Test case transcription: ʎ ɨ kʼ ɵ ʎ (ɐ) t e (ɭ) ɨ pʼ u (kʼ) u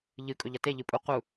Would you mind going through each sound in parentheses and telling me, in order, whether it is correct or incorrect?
correct, incorrect, incorrect

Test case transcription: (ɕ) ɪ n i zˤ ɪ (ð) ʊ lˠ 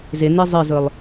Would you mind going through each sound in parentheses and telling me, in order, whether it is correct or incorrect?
incorrect, incorrect

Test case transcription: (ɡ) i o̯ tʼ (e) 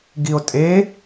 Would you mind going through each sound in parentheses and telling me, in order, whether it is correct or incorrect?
correct, correct

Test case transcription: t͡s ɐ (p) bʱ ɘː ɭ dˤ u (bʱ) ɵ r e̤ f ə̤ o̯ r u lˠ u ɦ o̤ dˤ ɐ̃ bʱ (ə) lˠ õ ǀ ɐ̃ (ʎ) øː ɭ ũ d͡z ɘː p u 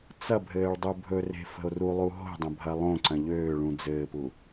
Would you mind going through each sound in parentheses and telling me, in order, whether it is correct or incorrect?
incorrect, correct, incorrect, correct

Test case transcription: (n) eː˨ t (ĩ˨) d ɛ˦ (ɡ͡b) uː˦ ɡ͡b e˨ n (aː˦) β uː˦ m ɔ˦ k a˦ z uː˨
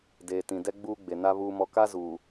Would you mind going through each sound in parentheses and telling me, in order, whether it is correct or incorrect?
incorrect, correct, correct, incorrect

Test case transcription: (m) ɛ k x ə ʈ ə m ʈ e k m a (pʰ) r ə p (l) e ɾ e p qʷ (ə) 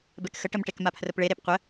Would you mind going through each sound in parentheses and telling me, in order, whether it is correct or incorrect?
incorrect, correct, incorrect, correct

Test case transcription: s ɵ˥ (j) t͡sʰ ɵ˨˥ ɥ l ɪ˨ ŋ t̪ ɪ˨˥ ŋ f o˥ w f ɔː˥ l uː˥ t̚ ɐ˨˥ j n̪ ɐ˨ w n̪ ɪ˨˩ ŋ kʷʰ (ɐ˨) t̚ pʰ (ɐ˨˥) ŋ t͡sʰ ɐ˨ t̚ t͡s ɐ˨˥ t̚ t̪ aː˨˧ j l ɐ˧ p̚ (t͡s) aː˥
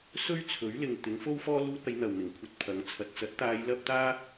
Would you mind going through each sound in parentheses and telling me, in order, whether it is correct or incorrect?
incorrect, correct, correct, incorrect

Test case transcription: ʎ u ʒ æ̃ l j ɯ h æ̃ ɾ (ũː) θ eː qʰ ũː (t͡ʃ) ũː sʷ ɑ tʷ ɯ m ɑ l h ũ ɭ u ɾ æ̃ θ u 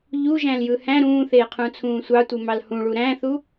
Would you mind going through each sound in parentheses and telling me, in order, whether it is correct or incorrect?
correct, incorrect

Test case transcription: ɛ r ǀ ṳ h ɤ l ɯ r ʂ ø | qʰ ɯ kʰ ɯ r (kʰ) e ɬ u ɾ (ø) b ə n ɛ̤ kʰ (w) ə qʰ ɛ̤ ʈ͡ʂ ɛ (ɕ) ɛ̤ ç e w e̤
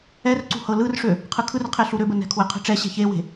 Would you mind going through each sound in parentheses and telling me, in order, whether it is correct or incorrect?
incorrect, correct, correct, correct

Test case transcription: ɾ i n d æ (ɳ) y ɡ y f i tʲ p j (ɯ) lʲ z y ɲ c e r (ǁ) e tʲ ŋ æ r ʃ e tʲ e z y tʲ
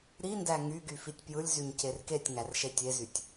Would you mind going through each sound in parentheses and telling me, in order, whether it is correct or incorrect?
incorrect, correct, incorrect

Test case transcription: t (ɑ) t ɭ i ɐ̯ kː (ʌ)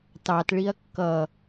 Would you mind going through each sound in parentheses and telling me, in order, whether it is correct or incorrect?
correct, correct

